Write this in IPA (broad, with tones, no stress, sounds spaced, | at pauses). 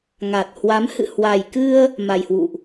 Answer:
ŋ a˨˩ t̚ h w a˨˦ m h ɨ̰˧˨ h w a˨˩ j k ɨ˧ ə̯ | m a˨˩ j h w ṵ˧˨ ʔ